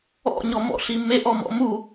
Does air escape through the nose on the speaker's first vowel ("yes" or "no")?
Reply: no